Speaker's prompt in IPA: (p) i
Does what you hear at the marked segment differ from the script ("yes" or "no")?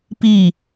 no